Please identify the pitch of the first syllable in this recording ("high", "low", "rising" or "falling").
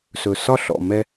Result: low